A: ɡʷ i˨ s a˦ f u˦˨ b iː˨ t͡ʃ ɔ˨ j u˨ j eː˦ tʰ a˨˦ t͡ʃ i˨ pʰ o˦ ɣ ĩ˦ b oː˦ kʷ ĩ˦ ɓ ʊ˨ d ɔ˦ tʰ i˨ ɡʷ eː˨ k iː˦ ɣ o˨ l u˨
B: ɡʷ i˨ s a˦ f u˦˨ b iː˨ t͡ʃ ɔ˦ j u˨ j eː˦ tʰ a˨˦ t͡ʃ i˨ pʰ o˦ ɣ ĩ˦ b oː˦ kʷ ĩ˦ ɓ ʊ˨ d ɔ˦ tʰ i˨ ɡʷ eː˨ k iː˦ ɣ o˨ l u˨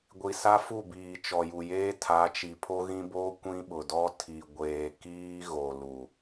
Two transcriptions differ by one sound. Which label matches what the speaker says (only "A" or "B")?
A